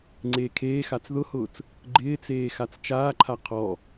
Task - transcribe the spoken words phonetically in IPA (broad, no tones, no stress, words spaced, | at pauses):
ŋ͡ǀeːkʰeːxat͡s ðʊhʊːt͡s | ɡ͡ǃɪːt͡seː xat͡st͡ʃaːǃʰa qʰɔ